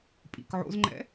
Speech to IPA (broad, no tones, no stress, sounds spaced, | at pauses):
pʼ ḭ k ʕ o̰ z ŋ͡ǃ ɛ̰